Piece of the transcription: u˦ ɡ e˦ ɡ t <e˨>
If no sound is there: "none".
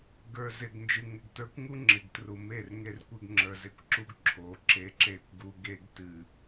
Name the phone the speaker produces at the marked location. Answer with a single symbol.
ɨ˨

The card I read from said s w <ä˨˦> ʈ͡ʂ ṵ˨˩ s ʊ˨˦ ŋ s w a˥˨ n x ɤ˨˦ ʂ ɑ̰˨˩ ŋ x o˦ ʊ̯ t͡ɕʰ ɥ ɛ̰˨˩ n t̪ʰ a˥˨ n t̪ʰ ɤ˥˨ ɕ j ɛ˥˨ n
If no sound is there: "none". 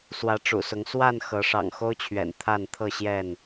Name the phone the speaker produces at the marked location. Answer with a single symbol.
ä˨˦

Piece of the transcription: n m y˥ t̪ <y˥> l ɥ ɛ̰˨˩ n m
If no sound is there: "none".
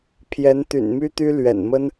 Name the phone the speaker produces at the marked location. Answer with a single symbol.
y˥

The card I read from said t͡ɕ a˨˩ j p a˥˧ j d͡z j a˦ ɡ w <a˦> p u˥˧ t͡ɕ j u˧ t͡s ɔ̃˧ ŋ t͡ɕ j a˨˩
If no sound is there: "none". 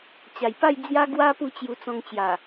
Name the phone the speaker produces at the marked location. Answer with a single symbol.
a˦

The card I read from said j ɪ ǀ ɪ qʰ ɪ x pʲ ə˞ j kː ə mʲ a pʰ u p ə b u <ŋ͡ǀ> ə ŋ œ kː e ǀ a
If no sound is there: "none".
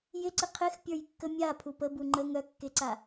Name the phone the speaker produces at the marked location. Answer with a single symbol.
ŋ͡ǃ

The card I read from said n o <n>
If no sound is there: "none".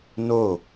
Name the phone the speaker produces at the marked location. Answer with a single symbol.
none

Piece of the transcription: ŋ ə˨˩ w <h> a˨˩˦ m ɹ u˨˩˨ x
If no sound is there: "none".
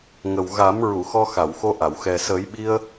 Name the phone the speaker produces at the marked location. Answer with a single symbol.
ɣ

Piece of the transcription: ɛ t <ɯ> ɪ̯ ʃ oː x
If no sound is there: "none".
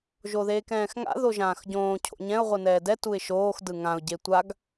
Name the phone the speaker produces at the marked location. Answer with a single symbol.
u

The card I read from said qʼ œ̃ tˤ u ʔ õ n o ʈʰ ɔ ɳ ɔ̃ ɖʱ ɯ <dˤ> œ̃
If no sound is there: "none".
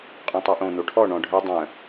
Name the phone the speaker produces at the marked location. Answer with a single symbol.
dˤ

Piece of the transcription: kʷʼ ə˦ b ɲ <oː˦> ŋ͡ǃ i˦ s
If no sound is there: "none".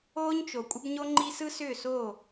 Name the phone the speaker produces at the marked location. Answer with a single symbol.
o˦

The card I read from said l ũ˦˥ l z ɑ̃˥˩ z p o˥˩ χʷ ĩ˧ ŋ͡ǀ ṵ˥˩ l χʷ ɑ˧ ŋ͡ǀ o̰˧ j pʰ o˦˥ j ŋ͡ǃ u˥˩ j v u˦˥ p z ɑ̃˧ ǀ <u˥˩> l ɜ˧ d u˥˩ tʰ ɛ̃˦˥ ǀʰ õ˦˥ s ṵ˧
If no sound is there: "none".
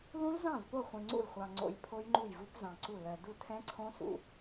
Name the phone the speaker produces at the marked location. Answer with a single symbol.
u˥˩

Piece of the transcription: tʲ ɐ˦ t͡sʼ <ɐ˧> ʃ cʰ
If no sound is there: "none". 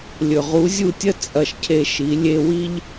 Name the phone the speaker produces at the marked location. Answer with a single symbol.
ɐ˧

